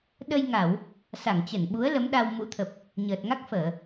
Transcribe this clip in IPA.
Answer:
ɗ ə˧ j ŋ a˧˩˨ w | s a˧˩ ŋ t͡ɕ ə˧˩ n ɓ u˨˦ ə̯ l ə˨˦ m ɗ a˧ w m ṵ˧˥ t̪ʰ ə˨˩ p̚ | ɲ əː˨˩ t̚ ŋ a˦˥ k̚ f əː˧˩˨

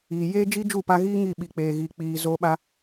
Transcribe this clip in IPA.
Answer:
iː˨ j eː˦ d͡ʒ i˦ d͡ʒ u˦˨ p a˧ ɣ iː˦ ŋ i˦˨ ɓ i˨ k͡p eː˨ ɣ iː˨ k͡p iː˨ z oː˧ ɓ a˧

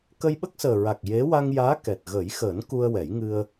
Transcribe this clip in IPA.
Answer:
k ə˧ j ɓ ə˦˥ k̚ s əː˨˩ ɹ a˨˩ k̚ j e˧˥ w a˧ ŋ j aː˧˥ k ɛ˨˩ t̚ ɣ ə˨˩˦ j x əː˨˩˦ n k u˧ ə̯ w ɛ˨˩˦ j ŋ ɨ˧ ə̯

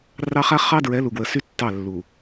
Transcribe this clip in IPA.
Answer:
r ɑ˦ χ a˦ χ ɑ˦ d ɹ ɛ˨˦ l u˨ ɡ w ə˨ s y˦ tː ɑ˦˨ lː u˨

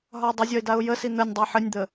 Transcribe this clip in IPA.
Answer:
ɦ ɒ ə̯ dˤ ɘ zʲ ɒ ɪ̯ d a ʊ̯ j ə s i n̪ ə nʲ dˤ e ħ ɘ nʲ d̪ ə

